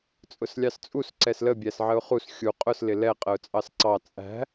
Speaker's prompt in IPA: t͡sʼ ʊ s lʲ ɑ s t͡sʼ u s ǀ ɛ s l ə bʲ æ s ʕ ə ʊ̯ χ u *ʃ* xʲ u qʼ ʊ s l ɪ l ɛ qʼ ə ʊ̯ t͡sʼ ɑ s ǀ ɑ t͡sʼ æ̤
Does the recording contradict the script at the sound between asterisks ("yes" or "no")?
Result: yes